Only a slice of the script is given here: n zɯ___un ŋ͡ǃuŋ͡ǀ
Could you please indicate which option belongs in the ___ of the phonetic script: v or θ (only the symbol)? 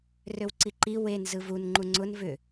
v